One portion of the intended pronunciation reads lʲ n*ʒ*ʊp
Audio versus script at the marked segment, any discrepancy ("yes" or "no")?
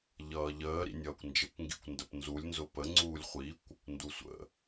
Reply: yes